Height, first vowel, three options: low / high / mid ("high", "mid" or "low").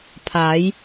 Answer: low